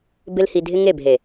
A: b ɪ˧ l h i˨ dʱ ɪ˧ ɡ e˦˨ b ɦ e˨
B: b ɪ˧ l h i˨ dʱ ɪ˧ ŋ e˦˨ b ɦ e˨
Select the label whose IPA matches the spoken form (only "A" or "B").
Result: B